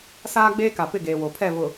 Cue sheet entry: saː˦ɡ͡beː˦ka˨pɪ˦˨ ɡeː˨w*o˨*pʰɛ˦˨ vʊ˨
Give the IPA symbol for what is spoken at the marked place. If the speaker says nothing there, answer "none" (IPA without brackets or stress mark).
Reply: o˨